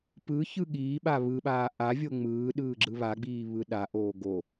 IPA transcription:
pɯ çɯɠiːɓa βɯɓaː ʔavʲo ŋ͡mɯːɗɯː ɡ͡ǁɯβaɡ͡biː βɯɗaʔoː ɡo

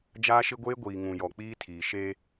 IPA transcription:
d͡ʒaː˦ʃɪ˦ɡʷeː˦ ɡʷiː˨ŋũ˨ jɔ˨k͡piː˦ tʰiː˨ ʃeː˦

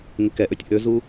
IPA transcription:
ŋɪkɛʔøtʲ ʔøzu

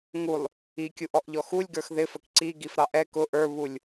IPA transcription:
ŋulˠ | ikʲuʔɔʔʎɔ xulʲɡə˞x ðɪfək ǀiɡifɾɑ ʔɛ kʊ ʔə˞βulʲ

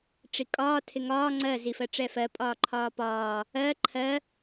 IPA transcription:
ʈ͡ʂikʼɒː tʰɪŋɒː ŋ͡ǀɜ zifɜʈ͡ʂɛfɜ pʼɒːǃʰɒːpɒː | ɜ ǃʰɜ

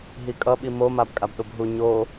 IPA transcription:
ɦikʼʌɓi momab kʼabɗobɦu ɲo

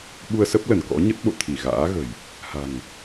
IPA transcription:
ɓu˧ə̯sə˦˥p̚lə˧˩n kɔ̰˧˥ɲə˦˥t̚ɓo̰˧˨ t̪ʰi˧˩ɣa̰ː˧˥ɣə̤˨˩j | ha̤˨˩ŋ

